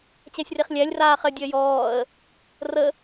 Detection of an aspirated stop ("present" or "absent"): absent